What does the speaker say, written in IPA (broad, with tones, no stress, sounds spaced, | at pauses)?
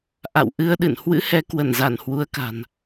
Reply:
ʔ a̰˧˨ w ʔ ɨ˧ ə̯ ɗ ɨ̰˧˨ n h w ɨ̰˧˥ h ɛ˨˦ k w ə˧˩ n z a˧˩ n h w u˨˦ ə̯ k a̤˨˩ n